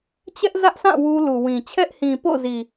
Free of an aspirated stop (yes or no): no